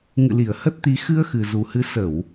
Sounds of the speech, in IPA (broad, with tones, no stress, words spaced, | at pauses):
ŋɨ̰˧˨li˧˩ə̯ hə˦˥t̚t̪i˨˦ xɨ˧ə̯xɨ˨˩zu˨˩hɨ˨˦ sə˧˩˨w